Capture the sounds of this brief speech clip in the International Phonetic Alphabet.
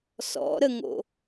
sɔ̰ɾəŋo̰

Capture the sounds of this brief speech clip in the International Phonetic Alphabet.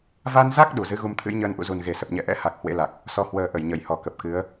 va˧nza˦˥k̚ ɗu˧˩zɨ˨˦ ɣu˧mt̪ʰɨ̰˧˥jɲəː˧n ʔṵ˧˨zu˨˩nɣe˨˩ sə˨˩p̚ɲɛ̰˧˨ʔɛ̰˧˥ ha˨˩k̚ hwḛ˧˥la˨˩k̚ | sɔ˧ hwəː˨˩ ʔə˧˩jɲə˧˩jhɔ˧˩ kə˨˩p̚kɨ˨˦ə̯

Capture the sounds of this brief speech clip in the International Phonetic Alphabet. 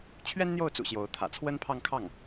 t͡ɕʰɥɛ˥nn̪jo˥˩ʊ̯t͡sṵ˨˩ ɕjo˧˥ʊ̯ t̪ʰä̰˨˩t͡sʰwə˥npʰɑ˥˧ŋkʰɑ˥˩ŋ

